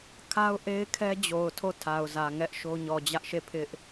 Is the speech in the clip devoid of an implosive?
yes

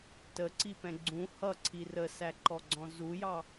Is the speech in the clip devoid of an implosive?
yes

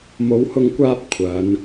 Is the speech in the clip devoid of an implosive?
yes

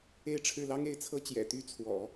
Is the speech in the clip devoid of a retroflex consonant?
no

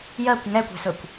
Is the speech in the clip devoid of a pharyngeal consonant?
yes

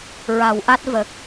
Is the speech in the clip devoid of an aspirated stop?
yes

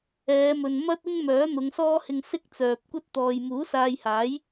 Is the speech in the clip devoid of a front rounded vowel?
no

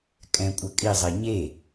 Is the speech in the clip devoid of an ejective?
no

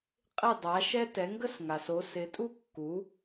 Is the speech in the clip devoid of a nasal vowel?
yes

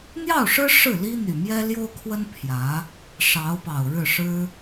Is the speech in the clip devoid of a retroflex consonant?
no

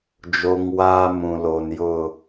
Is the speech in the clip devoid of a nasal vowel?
no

